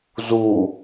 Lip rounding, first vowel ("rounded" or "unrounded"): rounded